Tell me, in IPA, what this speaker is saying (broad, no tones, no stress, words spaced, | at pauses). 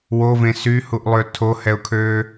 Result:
wovẽ syhuʔlˠø tʰohɛʊ̯kʰøː